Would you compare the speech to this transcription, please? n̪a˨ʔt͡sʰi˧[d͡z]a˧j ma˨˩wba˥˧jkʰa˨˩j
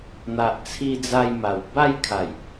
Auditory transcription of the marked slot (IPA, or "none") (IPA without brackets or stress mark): d͡z